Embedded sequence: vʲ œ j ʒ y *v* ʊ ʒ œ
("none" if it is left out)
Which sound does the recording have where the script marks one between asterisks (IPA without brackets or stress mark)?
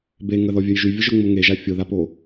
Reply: vʲ